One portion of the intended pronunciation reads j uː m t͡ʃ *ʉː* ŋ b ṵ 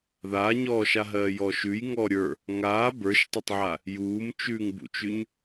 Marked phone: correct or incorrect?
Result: correct